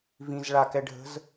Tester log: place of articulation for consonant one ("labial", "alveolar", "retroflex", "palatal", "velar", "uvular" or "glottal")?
labial